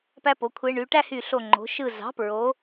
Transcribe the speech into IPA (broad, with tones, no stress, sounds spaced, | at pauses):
p æ˥ p o˩˧ kʷʰ e˧˥ ɳ y˩˧ ʈ æ˥ h y˧˩ ɬ o˧˩ ŋ͡ǃ o̤˩˧ ʃ ɯ˧˩ z ɑ̤˩˥ p ɹ o˩˧